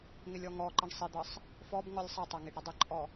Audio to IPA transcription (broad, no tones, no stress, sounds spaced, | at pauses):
ŋ ɪ lʲ ɔ ŋ ɔ ǃ ɪ ɳ sˤ ɪ d̪ ʌ sˤ | f ɔ b ŋ ɔ lʲ sˤ ʌ tˤ ʌ ŋ i ɖ ɾ ə dˤ ə ǃʼ ɔ